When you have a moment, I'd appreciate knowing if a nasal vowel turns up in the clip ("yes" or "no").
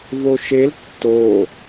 no